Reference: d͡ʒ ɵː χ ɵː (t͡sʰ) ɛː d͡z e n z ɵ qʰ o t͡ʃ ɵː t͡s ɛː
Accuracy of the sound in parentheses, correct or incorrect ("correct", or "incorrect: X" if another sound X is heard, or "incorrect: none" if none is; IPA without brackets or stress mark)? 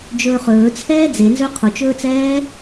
correct